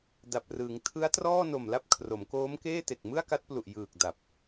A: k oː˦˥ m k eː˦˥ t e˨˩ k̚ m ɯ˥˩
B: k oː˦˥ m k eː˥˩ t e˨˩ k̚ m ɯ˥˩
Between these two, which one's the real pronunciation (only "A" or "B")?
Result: B